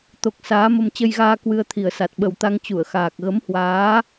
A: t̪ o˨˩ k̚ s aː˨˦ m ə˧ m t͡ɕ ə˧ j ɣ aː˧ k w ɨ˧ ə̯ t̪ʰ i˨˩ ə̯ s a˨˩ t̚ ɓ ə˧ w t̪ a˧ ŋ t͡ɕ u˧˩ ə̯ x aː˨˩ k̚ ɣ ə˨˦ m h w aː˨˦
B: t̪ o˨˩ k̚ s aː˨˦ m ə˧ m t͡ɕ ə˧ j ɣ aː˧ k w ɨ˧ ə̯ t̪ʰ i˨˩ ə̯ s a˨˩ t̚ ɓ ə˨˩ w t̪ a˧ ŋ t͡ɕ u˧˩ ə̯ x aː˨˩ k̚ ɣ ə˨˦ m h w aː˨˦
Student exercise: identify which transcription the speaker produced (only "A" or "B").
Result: B